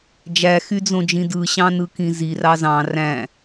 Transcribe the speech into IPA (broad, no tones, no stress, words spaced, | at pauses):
d͡ʒæxyd͡zõd͡ʒĩ dɯɕɑ̃nɯkĩ zirɑ zɑ̃ ræ̃